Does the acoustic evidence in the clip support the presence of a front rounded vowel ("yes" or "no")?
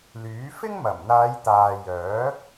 yes